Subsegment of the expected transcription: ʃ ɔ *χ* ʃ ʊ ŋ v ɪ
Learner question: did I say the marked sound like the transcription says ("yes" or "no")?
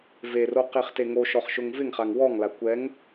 yes